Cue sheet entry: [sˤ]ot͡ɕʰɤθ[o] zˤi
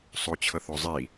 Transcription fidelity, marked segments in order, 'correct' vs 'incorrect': correct, correct

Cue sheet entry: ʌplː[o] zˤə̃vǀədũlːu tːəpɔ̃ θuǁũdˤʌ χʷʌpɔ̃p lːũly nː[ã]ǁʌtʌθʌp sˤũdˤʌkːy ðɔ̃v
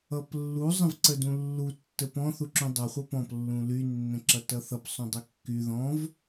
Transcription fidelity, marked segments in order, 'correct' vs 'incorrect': incorrect, incorrect

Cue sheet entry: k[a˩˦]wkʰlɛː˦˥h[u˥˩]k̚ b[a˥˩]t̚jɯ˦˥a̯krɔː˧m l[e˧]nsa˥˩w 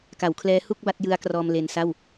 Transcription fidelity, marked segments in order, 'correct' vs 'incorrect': correct, correct, correct, correct

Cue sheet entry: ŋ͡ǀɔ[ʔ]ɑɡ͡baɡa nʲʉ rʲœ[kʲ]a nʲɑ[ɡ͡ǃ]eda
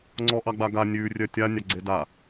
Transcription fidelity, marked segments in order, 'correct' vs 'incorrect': correct, incorrect, incorrect

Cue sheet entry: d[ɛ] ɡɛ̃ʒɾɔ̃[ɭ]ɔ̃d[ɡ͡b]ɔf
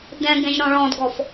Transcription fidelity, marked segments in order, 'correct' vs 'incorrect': incorrect, correct, incorrect

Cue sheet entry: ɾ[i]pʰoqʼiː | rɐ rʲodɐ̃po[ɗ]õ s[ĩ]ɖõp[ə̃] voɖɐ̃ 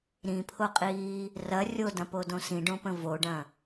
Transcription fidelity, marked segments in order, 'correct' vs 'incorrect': incorrect, incorrect, correct, correct

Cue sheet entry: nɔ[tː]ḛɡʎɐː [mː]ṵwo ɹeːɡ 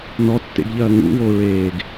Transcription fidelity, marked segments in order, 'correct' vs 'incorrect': correct, incorrect

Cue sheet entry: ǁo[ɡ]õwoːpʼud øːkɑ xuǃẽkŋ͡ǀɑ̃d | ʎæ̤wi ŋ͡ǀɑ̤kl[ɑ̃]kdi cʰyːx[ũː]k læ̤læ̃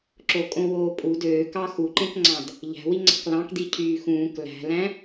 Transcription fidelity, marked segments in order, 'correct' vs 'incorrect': incorrect, correct, correct

